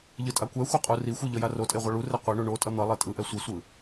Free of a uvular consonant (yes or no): no